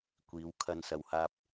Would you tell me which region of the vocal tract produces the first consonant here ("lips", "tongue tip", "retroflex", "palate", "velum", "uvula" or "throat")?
velum